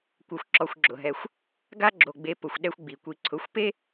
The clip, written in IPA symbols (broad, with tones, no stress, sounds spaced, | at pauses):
kʷ ɛ˧ xʷ ǁ ɔ˧ xʷ ɡ͡ǁ ʊ˨ ɦ ɛ˧ xʷ | ɡ a˦ ɡ͡ǁ o˨ ɡ͡b e˧ p ʊ˨ xʷ ɗ ɛ˦ xʷ ɡ͡b i˨ kʷ i˧ ǀʰ ʊ˨˦ xʷ p e˦